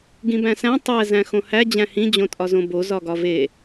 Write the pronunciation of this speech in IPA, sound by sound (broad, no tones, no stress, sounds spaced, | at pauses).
ɡ ĩ b æ̃ s æ̃ tˤ æ z æ̃ x õ h æ d͡ʑ æ̃ h ĩ d͡ʑ õ tʼ ɒ z õ b o z ɒ ɡ ɒ v e